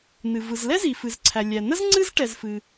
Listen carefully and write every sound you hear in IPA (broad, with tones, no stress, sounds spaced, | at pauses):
n ɨ˩ v ɯ˩ z l ɛ˥ z i˩ f ɨ˩ z ǀʰ æ˩ lʲ æ˩ n ə˥ z ŋ͡ǀ ɨ˥ z ʈ ɛ˩ z f ɨ˩